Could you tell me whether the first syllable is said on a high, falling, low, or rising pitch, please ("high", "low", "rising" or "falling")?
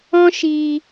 high